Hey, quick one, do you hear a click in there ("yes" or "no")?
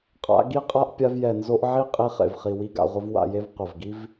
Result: no